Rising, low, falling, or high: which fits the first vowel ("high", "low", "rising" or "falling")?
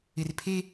low